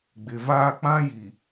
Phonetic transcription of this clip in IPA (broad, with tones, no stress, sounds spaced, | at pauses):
ɡ͡b ɪ˨ v aː˦ k͡p ã˦ j i˨